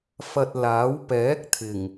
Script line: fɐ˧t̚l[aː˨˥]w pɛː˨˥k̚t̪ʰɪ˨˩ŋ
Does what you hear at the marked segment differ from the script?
no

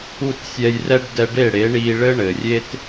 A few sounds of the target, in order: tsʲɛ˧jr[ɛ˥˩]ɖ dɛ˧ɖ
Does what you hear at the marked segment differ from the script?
yes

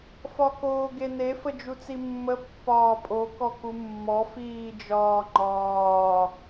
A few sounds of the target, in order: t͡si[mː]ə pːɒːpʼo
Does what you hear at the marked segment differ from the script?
no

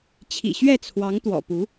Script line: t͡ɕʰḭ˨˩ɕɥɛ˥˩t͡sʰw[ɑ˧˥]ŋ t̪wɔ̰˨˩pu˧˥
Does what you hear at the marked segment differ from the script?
no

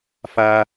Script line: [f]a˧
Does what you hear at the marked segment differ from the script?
no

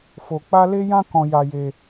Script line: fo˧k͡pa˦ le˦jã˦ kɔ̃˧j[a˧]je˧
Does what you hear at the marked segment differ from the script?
no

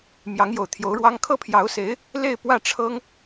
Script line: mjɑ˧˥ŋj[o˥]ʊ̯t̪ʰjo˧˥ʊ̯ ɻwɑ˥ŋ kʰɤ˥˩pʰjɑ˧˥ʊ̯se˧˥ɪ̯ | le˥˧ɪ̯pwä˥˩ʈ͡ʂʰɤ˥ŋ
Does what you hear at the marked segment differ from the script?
yes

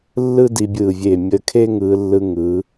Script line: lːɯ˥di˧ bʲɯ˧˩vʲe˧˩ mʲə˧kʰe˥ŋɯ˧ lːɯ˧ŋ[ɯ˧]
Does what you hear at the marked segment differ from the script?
yes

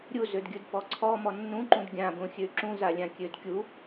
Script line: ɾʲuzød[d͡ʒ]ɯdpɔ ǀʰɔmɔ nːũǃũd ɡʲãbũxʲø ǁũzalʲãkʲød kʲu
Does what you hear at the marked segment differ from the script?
yes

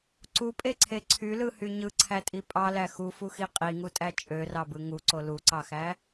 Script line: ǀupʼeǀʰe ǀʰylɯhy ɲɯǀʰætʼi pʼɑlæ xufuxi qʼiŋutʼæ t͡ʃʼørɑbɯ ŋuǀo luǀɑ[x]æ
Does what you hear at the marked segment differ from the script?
no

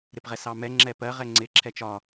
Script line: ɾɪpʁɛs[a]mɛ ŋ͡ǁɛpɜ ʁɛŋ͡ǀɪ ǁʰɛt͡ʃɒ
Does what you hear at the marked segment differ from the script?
yes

